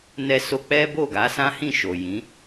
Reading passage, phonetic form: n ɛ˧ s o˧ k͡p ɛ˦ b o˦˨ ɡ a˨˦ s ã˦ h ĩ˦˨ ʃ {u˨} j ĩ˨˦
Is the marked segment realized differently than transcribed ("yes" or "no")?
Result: yes